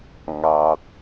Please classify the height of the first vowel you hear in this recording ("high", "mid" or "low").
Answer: low